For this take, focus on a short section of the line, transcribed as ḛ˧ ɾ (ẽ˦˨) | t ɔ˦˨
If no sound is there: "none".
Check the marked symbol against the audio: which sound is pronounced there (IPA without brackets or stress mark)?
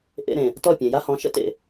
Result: ẽ˨